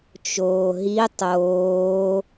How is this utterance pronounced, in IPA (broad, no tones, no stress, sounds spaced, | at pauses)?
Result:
t͡ʃ oː ɦ i tˤ oː